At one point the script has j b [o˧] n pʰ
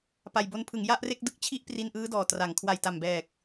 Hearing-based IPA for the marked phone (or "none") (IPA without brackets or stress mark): o˦˥